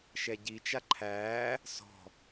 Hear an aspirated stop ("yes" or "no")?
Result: yes